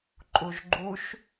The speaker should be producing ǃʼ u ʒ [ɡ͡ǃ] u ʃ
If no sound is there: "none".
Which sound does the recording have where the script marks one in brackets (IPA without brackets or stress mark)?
ɡ͡ǃ